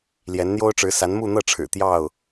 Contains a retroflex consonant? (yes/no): yes